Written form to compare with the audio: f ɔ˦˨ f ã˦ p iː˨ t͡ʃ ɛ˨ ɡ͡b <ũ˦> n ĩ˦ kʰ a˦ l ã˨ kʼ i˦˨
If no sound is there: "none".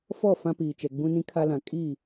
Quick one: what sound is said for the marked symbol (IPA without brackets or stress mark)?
ũ˦